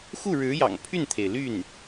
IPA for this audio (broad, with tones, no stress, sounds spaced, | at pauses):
x u˥˩ ɻ ɻ̩˧˥ j ɑ̰˨˩ ŋ pʰ y˥˩ n t̪ʰ e˩ ɪ̯ l y˥˩ n